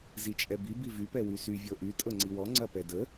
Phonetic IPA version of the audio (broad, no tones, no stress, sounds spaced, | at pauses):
z i t͡ʃʼ ɛ b i b i v y p ɛ w y s y vʲ ɤ ʔ y tʼ ɤ ŋ͡ǀ i w ɔ ŋ͡ǀ ɐ p ɛ d ə